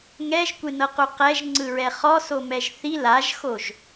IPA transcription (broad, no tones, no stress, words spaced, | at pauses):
ŋɛʒkʷenɤqu qɛʒŋ͡ǀɯɹɛ χɔsomɛʒ θi laʒxoʒ